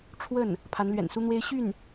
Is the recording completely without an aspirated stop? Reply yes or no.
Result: no